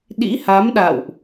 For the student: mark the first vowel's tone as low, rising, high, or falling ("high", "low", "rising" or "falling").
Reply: rising